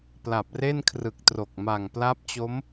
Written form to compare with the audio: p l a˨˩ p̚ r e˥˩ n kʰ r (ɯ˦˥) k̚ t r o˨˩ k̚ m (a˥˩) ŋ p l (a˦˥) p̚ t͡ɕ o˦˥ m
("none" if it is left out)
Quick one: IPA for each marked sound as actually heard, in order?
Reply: ɯ˨˩, a˨˩, a˦˥

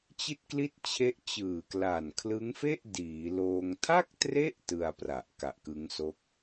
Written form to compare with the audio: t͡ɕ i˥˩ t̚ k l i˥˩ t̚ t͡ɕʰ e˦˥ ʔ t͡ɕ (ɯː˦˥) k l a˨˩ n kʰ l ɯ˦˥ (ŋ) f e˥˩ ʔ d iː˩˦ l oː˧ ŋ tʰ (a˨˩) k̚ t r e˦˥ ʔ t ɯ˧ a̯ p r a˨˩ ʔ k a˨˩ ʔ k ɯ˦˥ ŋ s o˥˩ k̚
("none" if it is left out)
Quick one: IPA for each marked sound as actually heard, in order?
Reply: ɯː˨˩, ŋ, a˥˩

